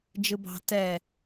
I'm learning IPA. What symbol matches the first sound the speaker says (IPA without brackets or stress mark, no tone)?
d͡ʒ